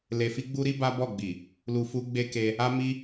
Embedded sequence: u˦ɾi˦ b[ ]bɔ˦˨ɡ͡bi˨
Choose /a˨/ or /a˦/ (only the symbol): a˦